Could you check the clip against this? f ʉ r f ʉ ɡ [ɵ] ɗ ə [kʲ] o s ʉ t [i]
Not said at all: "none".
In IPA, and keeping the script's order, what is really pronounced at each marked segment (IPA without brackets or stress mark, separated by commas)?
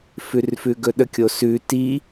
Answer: ɵ, kʲ, i